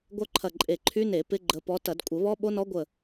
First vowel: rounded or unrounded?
rounded